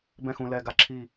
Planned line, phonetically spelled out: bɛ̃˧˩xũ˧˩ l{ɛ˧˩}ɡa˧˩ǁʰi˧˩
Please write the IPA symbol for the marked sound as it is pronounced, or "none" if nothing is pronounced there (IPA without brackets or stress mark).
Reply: ɛ˧˩